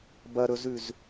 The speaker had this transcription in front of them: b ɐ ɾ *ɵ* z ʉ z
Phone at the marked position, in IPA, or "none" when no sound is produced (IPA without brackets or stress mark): ɵ